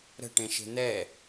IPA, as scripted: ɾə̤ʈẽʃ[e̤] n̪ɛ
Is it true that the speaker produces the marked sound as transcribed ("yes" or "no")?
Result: yes